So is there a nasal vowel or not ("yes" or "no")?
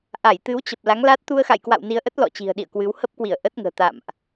no